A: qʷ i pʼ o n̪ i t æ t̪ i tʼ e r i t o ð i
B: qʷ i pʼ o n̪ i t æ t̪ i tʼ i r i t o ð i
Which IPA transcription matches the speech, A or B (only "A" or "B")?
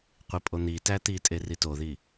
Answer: A